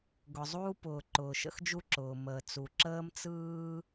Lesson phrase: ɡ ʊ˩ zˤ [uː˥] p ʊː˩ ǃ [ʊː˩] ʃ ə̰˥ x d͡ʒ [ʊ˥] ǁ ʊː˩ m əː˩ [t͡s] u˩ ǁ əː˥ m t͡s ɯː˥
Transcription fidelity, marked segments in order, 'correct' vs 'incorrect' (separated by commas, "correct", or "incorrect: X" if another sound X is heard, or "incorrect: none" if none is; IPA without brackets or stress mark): correct, correct, incorrect: u˥, correct